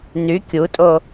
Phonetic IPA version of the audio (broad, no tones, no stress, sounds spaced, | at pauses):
n y kʲ u tʼ o